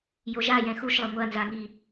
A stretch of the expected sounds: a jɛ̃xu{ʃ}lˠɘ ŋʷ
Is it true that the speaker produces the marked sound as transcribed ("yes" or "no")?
yes